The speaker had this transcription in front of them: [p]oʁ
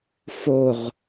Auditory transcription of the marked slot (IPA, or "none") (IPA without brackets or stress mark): f